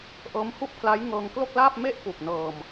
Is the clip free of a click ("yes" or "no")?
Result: yes